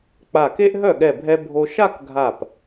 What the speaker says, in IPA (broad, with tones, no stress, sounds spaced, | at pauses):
k͡p a˧˩ k e˥ ʔ ɦ œ˥˩ ɠ ɛ˧˩ bʱ ɛ˧ bʱ o˧ ʃ a˥˧ k ɡʱ a˧˩ p